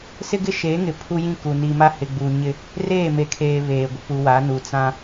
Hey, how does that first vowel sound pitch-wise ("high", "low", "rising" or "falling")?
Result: high